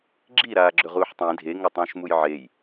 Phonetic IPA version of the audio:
ɡ͡ǁ i ɾ aː ɡ͡ǁ ɵ ʁ uː ħ tˤ ĩ dʱ e ŋ o tˤ ũː ʃ m u j ʕ e j

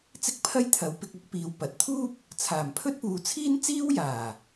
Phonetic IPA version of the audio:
t͡s ɪ˥ k̚ pʰ ɐ˥ j t̪ʰ ɐ˨˧ w p ɪ˧ k̚ ɐ˨˥ k̚ p iː˧ w p ɐ˨˥ t̚ t̪ʰ uː˥ p̚ | t͡sʰ aː˨˩ m pʰ ɵ˥ t̚ p uː˨ t͡sʰ iː˥ n t͡s iː˥ w j aː˨˩

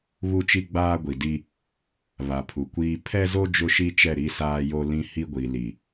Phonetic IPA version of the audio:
β u˦ t͡ʃ i˦ ɡ͡b aː˦ ɡʷ i˨ d i˦ | β a˨ pʰ u˨ kʷ iː˦ pʰ ɛ˦ z o˦ d͡ʒ ʊ˦ ʃ i˦ t͡ʃ ɛ˦˨ ɾ i˦ s aː˦ j o˦ l ĩ˦ h i˦ ɡʷ i˨ l i˨

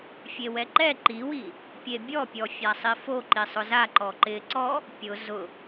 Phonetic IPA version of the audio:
fʲ e w ɛ ǃ ɛ ǃ i w i | pʲ e bʲ ɔ pʲ ɔ fʲ a sˤ i f o ǃ i sˤ ʊ z a ǃ ɔ ǃ ɪ ǀ ɔ | pʲ ʊ z ʊ

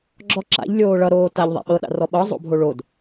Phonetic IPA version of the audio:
ɡ͡ǁ ɔ ǁ a̰ ʎ lʲ oː ɭ ʌ ɾ oː t a ʎ ðˤ a̰ ɓ ɤ ɗ a̰ r ɔ ɓ ɤ zˤ o̰ bʱ o ɭ o d

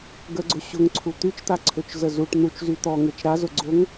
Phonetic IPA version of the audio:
ɡ ə ɡ͡ǀ ʊ ɕ ʊ ŋ ǀʰ u t̪ y t͡ʃ t̪ a ǀʰ ø t͡ʃ z ə z u ʈ n̪ u t͡ʃ z y t̪ ɔ ŋ e t͡ʃ ɾ a z ʊ ɡ͡ǀ ʊ ŋ

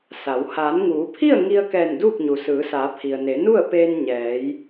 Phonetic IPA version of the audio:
s a˩˧ w h aː˩˧ n ŋ uː˩˧ pʰ i˥˨ ə̯ ŋ i˧ ə̯ k ɛː˧˩ n d uː˥˨ k̚ ɲ u˩ s ɯː˩˧ s aː˩˧ pʰ i˩ ə̯ n e˩˧ n u˥˨ ə̯ p eː˧ n ɲ ɛː˩˧ j

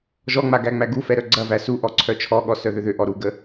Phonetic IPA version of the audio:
ʒ ɔ ŋ͡m a ɡ æ ŋ͡m æ ɡ u f ɛ ɾ œ ɡ͡ǀ ɐ v æ s u ʔ ɔ ǀʰ œ t͡ʃʰ ɔ ɠ ɔ s œ ð ʏ ð ʏ ʔ ɔ ɾ u ɡ ə

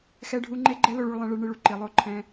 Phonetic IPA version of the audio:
x ɛ˦ ɖʱ u˦ ŋ͡ǃ e˦ ɡ͡ǃ ɛ˦ l o˧ ɭ u˧ ɭ lˠ ɛ̃˧ ɭ ɨ˧ ɭ ɳ ɨ˧ ɭ u˨ ǃ i˨ lˠ o˦ ǃʰ ɛ̃˧

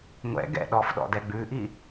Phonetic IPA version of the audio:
ŋʷ ɛ̰ ɡ ɛ̰ ɗ ɔ f ɗ ɔ̰ d ɛ ɡ͡b ʉ ʔ i

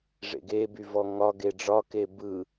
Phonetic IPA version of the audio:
ʐ ḛ ɡ e b y v ɔ ŋ ɒ ɡ e ɖ͡ʐ ɒ k e b ɯ

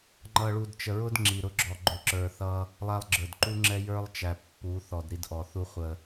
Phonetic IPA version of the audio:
ŋ͡ǃ ʌ˨ ɭ u˨ d t͡ʃ ə˨ ɹ ʊ˦ d ŋ͡ǁ i˨ ɾ ʊ˦ ɡ͡ǁ ɔ˨ ɡ͡ǃ ʊ˨ ǁ ə˞˨ θ ʌ˦ | lˠ æ˦ lˠ ɡ͡ǁ ə˞˨ d ǃ u˦ ŋ͡ǁ ɛ˦ j ə˞˦ lˠ t͡ʃ æ˨ pː u˨˦ θ ɔ˨ d ɾ i˦ d ʔ ɔ˨ θ u˦ χʷ ə˨

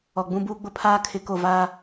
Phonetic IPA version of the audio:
ɔ˨ ɡ͡b ũ˦ b uː˦ ɡ͡b ʊ˦ pʰ aː˦ kʰ ɪ˨˦ k o˨ v aː˦

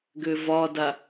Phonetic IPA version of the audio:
ɡ ø v ɒ d a

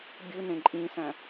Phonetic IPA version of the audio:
bʲ ɯ n ẽ ǃʼ ĩ s æ̃

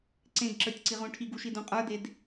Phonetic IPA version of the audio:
ǀ ẽ ɡ ǁ ə˞ tʲ ǀ i ʁ ũ ʈʰ i ɡ u ʃ i d ũ qʼ ə˞ d e d

